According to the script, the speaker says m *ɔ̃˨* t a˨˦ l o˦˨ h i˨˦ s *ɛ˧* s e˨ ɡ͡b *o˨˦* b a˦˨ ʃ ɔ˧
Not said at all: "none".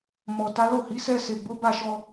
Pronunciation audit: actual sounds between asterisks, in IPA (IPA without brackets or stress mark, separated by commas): ɔ˨, ɛ˧, o˨˦